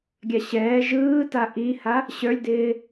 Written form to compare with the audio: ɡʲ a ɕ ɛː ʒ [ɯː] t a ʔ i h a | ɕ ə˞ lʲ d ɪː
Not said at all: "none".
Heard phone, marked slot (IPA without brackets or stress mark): ɯː